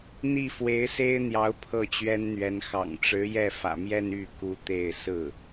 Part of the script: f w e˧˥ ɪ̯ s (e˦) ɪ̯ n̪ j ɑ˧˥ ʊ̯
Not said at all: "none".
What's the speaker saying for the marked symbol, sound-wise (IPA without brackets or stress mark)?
e˥